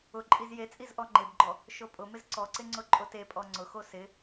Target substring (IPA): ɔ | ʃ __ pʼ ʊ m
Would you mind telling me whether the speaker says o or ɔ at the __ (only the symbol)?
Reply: o